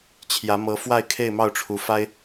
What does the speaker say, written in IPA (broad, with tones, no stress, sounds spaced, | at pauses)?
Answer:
t͡ɕʰ j ä˧˥ m ɤ˧˥ f w a˥˧ ɪ̯ kʰ e˥˧ ɪ̯ m ɑ˥˩ ʊ̯ ʈ͡ʂʰ u˧˥ f a˥ ɪ̯